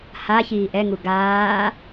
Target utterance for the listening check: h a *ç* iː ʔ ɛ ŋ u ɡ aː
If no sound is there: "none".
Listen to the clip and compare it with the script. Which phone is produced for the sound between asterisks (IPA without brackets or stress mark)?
ç